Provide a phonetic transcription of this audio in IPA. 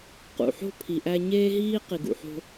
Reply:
q ṵ˨ ħ o̤˦ pʰ i˨ ʔ æ˦ ɲ eː˦ ɦ iː˦ q i˨ ɡ ṵ˨ ħ o̤˦

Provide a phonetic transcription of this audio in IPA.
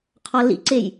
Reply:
qʰ ɒ l ḭ ǀ e j

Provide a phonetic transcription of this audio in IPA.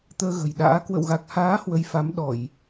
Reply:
t̪ əː˧ ɣ ə̤˨˩ j ɗ a̰ː˧˥ k w ə̰˧˨ w ɣ a˨˩ k̚ h aː˨˦ h w ə˨˦ j f a˨˦ m ɗ ɔ˧˩˨ j

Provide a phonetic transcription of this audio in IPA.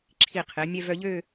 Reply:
ǁʰ i˧˩ qʰ e˩˧ mʲ ɛ˧ v œ˧ ʎ ø˥˧

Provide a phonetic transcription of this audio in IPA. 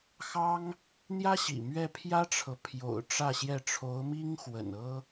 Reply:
x ɑ˥ ŋ | n̪ j ä˥ ɕ ḭ˨˩ m ɥ ɛ˥˩ pʰ j ä˥ ʈ͡ʂʰ ɤ˨ pʰ j o̰˨˩ ʊ̯ ʈ͡ʂ ä˥˧ ɕ j ɛ˥˩ ʈ͡ʂʰ o˧˥ ʊ̯ m i˥ ŋ x w ə̰˨˩ n ɤ˥

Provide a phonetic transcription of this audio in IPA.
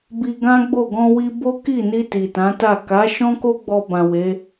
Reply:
b i˧ ɡ ã˦ ɡ͡b o˦˨ ɡ ɔ̃˧ w i˧ b o˦ k i˦˨ n i˧ t i˨ t ã˨˦ t a˦˨ k a˨˦ ʃ ɔ̃˦ k o˦ ɡ͡b ɔ˧ b ã˨ w e˨˦

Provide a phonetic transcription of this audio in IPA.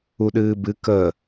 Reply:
u ɗ ɨː b ɨ k ə

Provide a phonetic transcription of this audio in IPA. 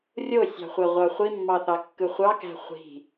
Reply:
rʲ o sʲ ɑ̤ χʷ æ ʁʷ ɑ χʷ i mː ɑ θ ɑ kː ɯ χʷ ɑ k æ̤ χʷ i̤

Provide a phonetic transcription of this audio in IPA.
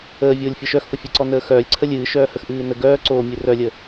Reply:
əː vʲ oː lʲ fʲ ə ʃ œ x f ə fʲ ɨ ǀ ɔ n əː x œː lʲ ǀʰ ə lʲ ɨː ʃ œː h ə x ʔ ɨː n ə ɡ œː ǀ o mʲ ɨ r œ lʲ ə

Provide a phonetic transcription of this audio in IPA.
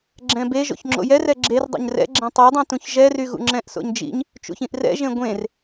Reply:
ɡ͡ǁ ɛ̃ b e ʒ o̰ ç ŋ͡ǁ o̰ j ɛ r ɛ ɡ͡ǁ e r dˤ o̰ ɲ r ɛ̰ ɡ͡ǁ ɛ̃ tˤ y dˤ ũ t ũ ç ʒ ɛ r y ɣ ṵ ŋ͡ǁ ɛ̃ ʔ s o̰ ɲ d͡ʒ ḭ ɲ | t͡ʃ ṵ ç ĩ ʔ r ɛ̰ ʒ ẽ ɡʷ ẽ r

